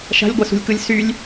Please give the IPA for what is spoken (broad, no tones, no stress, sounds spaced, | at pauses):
ʃ a̤ lʲ ɡʷ ɐ s ṳ lʲ k ɯ lʲ s y lʲ